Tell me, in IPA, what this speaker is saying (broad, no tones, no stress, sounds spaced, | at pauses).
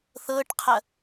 θ ɤ ʈ qʰ ɐ